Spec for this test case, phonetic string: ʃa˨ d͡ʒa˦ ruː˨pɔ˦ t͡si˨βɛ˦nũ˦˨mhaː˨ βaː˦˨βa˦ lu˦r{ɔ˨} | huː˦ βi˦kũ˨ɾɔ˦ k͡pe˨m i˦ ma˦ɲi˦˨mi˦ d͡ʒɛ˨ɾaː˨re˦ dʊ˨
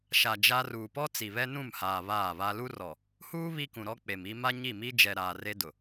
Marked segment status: correct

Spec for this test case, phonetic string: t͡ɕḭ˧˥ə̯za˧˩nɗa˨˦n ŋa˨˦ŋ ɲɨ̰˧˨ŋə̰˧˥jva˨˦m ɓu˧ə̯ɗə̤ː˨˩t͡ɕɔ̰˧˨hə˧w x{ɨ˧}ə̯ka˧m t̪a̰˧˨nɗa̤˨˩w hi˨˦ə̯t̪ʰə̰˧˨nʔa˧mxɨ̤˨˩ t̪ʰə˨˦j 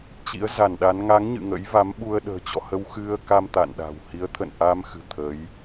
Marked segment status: correct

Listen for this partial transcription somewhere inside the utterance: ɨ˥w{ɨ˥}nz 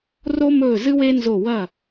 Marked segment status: incorrect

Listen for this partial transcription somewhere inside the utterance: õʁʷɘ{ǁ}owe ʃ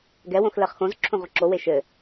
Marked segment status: correct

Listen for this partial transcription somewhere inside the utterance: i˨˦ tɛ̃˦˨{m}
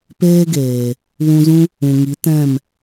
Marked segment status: correct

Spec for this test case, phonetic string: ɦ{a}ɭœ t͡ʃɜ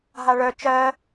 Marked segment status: correct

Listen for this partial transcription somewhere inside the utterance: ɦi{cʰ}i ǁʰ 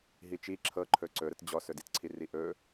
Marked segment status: incorrect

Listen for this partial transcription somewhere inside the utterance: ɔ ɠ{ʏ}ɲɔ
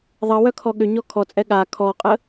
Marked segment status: correct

